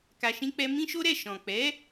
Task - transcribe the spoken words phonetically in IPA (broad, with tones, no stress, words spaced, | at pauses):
ka˧ʃĩ˦k͡pɛ˦ mĩ˦ ʃo˦ɾɛ˦˨ ʃɔ̃˨k͡pɛ˨˦